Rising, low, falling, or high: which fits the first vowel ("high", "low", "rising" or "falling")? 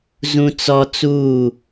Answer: high